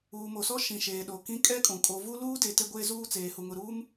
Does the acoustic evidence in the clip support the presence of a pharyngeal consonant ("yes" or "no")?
no